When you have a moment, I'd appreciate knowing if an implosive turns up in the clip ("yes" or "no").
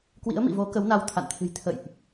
no